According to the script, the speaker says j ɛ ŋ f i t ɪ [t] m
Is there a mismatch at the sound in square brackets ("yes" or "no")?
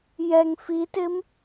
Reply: yes